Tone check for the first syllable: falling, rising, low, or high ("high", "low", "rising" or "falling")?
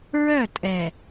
falling